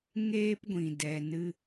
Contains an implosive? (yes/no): no